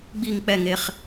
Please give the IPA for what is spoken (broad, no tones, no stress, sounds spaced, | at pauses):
ɡ͡b i ŋ k͡p ɛ ŋ e χ